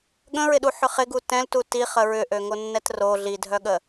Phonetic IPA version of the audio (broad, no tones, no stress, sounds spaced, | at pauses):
ɠ ə̃ ɹ ɪ ɗ u ħ ʏ χ ɪ ɡ u t ɛ̃ l t u t i χ ə ɹ ʏ ʔ ø ŋ o nː ɛ t r o ɮ i dʱ œ ɠ ə